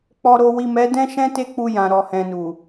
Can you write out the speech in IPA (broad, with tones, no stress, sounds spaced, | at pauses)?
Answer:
k͡p ɔ˨ ɾ o˨ w i˨ m ɛ˨˦ d ɛ̃˦ ʃ ɛ̃˦ t e˦ k͡p u˧ j ã˨ ɾ ɔ˨ h ɛ̃˨ n u˨